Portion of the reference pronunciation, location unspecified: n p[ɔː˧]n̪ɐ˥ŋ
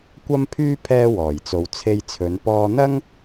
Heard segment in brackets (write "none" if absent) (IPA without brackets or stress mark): ɔː˧